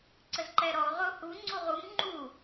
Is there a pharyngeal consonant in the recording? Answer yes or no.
no